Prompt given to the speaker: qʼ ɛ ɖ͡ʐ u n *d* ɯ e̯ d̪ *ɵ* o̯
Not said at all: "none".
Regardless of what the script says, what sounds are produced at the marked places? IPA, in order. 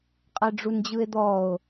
d͡ʑ, ɔ

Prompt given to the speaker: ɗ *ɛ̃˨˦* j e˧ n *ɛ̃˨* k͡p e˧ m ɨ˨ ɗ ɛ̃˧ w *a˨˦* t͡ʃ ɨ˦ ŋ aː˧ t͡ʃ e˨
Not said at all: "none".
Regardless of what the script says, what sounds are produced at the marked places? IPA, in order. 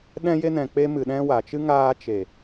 ɛ̃˧, ɛ̃˨, a˨

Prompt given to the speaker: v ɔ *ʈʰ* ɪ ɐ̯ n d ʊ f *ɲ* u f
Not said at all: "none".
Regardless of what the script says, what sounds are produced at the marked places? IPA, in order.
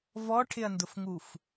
ʈʰ, ŋ

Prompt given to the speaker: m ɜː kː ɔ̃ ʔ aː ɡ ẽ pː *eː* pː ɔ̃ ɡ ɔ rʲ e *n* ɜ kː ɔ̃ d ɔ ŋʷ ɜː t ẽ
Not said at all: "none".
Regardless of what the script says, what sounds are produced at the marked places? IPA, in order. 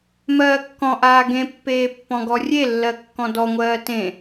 eː, lː

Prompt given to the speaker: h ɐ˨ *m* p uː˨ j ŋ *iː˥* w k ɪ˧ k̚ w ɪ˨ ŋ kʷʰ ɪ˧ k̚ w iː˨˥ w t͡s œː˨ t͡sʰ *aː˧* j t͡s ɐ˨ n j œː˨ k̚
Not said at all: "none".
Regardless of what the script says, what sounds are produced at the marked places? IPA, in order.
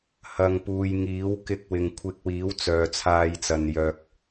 ŋ, iː˨˥, aː˧

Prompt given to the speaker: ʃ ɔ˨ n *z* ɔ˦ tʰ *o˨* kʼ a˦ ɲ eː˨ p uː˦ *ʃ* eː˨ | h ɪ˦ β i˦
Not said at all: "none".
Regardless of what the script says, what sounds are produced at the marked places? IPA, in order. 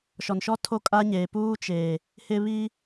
ʃ, o˦, t͡ʃ

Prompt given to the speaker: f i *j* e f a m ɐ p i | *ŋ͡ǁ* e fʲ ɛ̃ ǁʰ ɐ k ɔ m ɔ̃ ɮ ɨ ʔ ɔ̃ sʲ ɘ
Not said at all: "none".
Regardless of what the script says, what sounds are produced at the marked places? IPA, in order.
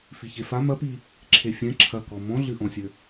ç, ǁʰ

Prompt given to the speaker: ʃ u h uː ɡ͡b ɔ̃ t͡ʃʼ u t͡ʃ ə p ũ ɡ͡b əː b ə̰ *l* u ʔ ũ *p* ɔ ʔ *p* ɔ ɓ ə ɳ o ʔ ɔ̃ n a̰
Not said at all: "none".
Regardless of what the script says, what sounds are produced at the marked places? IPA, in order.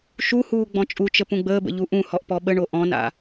ʎ, h, p

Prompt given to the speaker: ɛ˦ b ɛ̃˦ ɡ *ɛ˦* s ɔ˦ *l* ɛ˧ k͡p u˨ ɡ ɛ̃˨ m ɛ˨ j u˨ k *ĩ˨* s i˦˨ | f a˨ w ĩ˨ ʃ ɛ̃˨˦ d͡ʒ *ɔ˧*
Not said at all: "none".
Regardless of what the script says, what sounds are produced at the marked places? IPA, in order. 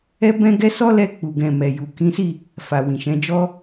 ɛ˦, l, ĩ˨˦, ɔ˦

